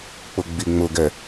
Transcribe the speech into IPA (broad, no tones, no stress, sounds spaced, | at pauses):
k͡p ʊ ɡ͡b i ŋ͡m ʊ ɡ ɛ